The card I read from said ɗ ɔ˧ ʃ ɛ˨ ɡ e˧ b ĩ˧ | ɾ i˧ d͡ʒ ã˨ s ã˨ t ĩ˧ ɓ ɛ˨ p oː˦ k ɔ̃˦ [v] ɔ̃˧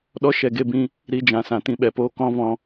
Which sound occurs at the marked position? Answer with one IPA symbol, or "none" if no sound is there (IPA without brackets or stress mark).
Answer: v